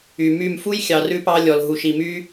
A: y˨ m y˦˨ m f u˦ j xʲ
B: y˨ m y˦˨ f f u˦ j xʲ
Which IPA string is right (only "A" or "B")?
A